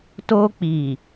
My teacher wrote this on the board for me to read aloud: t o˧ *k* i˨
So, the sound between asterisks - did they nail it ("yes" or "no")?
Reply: no